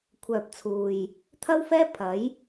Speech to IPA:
kʷʰ œː˨ p̚ t͡sʰ uː˨ j | t̪ʰ ɐ˥ w f ɛː˥ pʰ ɐ˨˥ j

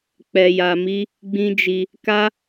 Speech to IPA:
k͡p ɛ˧ j a˧ m i˦ | ɡ͡b ĩ˦ d͡ʒ i˧ | k a˦

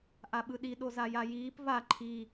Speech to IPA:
ʔ a ɓ ɯ ɗ i ɗ o z a j a j iː p v a ǃʰ i

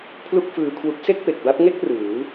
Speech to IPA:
pʰ l u˥˩ k̚ f ɯː˧ kʰ w u˦˥ k̚ s e˥˩ k̚ p e˨˩ k̚ b a˦˥ p̚ ŋ e˥˩ k̚ r ɯː˩˦

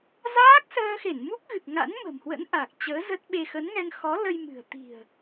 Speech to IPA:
z aː˦˥ k̚ s əː˧ x e˧˩ n m u˦˥ k̚ ɣ ɨ˨˩ k̚ ŋ a̰˧˥ n m ə̤˨˩ m h w ə̰˧˥ n ʔ a˨˩ k̚ t͡ɕ əː˨˦ z ə˦˥ t̚ ɓ e˧ x ə˨˦ n ŋ ɛ˧ ŋ x ɔ˨˦ l ə˧ j m ɨ̤˨˩ ə̯ t̪ i̤˨˩ ə̯

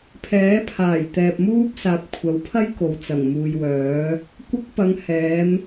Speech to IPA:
pʰ ɛː˨˥ pʰ aː˨˩ j t̪ ɛː˨ p̚ m uː˥ p̚ s aː˨ p̚ kʷʰ ɐ˨˥ w pʰ ɐ˥ j k o˨ w t͡s ɐ˨˩ ŋ m uː˨ j w œː˨˥ | kʷ ɐ˥ k̚ p ɐ˨˧ ŋ h ɛː˨˧ m

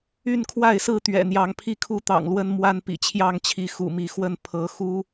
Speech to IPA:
y˥˨ n kʰ w a˥˨ ɪ̯ s ɹ̩˥˨ t̪ ɥ ɛ̰˨˩ n̪ j ɑ˨˦ ŋ pʰ i˥˨ kʰ u˦ t̪ ɑ̰˨˩ ŋ l w ə˦ n m w a˦ n p ḭ˨˩ t͡ɕʰ j ɑ˥˨ ŋ t͡ɕʰ i˨˦ x ṵ˨˩ m i˨˦ x w ə˥˨ n pʰ ɤ˨˦ x u˦

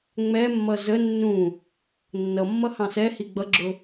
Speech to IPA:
ŋ͡m ɛ mː ʌ z ə nː ũ | nː ʌ mː ʌ h ɑ̃ s ɛ h i ɡ͡b ʌ ɡ͡ǁ ʊ

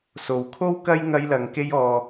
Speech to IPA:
s o˨ w kʰ o˥ w k ɐ˥ j ŋ ɐ˧ j l ɐ˨ ŋ k e˥ j ɔː˧

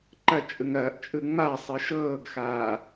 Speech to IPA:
ǃ ɐ t͡ʃʼ ɯ ŋ ɐː ʔ t͡ʃʼ ɯ ŋ͡m a sˤ ɯ ʃ ɤː ɡ x aː

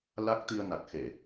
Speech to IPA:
l a˦˥ k̚ t̪ i˧ ə̯ n a˨˩ k̚ x e˧˩˨

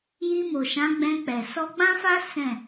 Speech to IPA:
j i˧ m o˨ ʃ ã˨˦ ɡ͡b ɛ̃˧ k͡p ɛ˨ s ɔ˧ ɡ͡b ã˦ f a˦ s ɛ̃˦˨

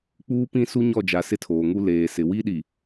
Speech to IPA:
k͡p uː˦ p ĩ˦ s u˦ ɲ ɔ˦˨ d͡ʒ a˨ s ɪ˦ tʰ oː˨ ŋ u˦ l eː˨ s ɪ˨ w i˦ ɗ i˨

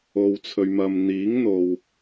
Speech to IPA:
o˨ w t͡sʰ ɵ˨ ɥ m ɐ˨ m n̪ iː˨˥ ŋ n̪ o˨ w

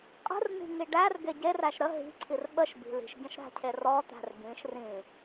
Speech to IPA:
qʼ ə̤ r n̪ i̤ ŋ i ɖ æ r ɡ e ɟ e r æ ʃ ɾ ə ɦ i̤ ǀʰ i r ɓ ə ʃ b i̤ l i̤ ʃ ɟ ə̃ ʃ ɾ æ̤ cʰ e r ɔ t̪ æ̤ r ɡ ĩ ʃ r ĩ

